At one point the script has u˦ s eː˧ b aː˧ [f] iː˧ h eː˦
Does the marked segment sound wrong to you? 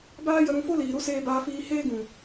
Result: no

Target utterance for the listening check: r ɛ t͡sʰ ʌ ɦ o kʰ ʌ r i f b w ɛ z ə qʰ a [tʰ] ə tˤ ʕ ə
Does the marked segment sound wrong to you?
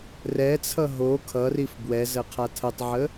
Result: no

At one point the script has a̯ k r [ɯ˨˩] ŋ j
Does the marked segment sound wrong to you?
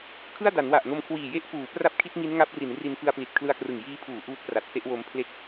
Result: no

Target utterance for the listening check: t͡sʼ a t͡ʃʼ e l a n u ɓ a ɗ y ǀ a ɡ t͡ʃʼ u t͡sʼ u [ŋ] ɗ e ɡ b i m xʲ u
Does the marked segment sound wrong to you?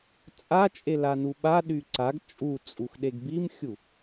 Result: yes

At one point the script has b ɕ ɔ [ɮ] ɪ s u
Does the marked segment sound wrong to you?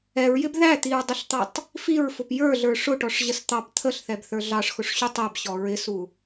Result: yes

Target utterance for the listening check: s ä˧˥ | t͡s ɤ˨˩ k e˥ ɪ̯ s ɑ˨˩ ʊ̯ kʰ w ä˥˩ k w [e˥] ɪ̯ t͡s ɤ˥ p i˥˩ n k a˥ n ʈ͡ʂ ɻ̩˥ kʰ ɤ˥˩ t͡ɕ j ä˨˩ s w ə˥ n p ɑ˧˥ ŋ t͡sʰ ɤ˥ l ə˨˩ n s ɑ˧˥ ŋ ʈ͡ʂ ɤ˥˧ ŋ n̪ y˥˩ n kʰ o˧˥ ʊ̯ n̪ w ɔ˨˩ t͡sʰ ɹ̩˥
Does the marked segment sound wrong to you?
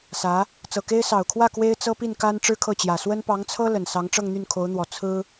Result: no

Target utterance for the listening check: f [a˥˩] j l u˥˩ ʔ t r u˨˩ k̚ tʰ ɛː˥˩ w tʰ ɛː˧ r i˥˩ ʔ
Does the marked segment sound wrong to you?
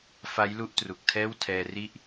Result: yes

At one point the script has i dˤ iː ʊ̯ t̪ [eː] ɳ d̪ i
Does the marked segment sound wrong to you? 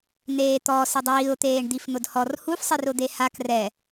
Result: no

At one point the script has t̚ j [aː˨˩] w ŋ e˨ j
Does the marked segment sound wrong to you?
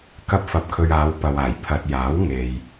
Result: yes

